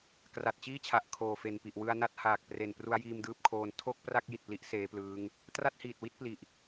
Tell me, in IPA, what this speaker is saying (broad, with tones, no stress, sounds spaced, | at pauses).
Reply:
k r a˨˩ t̚ t͡ɕ iː˥˩ t͡ɕʰ a˨˩ ʔ kʰ oː˨˩ f e˨˩ n p i˨˩ ʔ w ɯ˧ a̯ n a˥˩ t̚ h aː˨˩ k̚ p r e˨˩ n p r u˦˥ a̯ j iː˧ m d ɯː˦˥ p̚ kʰ oː˧ n tʰ o˥˩ k̚ p r a˥˩ k̚ j i˨˩ t̚ p l i˦˥ ʔ s eː˦˥ p l ɯː˦˥ ŋ | t r a˥˩ t̚ h iː˨˩ t̚ w i˥˩ t̚ p l i˨˩ ʔ